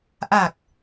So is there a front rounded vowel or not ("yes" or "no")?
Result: no